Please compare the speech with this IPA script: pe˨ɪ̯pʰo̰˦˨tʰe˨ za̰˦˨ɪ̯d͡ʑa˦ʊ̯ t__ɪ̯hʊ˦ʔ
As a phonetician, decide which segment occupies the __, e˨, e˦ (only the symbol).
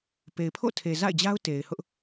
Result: e˨